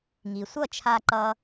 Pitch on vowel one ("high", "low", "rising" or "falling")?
low